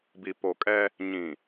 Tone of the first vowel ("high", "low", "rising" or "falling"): low